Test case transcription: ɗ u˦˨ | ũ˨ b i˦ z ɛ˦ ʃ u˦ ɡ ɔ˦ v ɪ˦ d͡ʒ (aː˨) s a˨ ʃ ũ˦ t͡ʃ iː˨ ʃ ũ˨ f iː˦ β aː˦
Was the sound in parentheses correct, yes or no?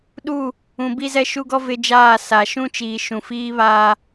no